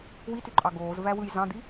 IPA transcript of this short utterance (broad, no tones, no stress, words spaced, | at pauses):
wityǃʼɑ ɡoːzvæwɯj zɑ̃d̪i